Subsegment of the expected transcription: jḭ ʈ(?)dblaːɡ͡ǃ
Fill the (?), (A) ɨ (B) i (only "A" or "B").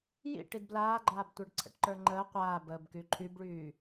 B